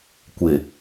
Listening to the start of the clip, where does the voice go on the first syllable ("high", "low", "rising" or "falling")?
low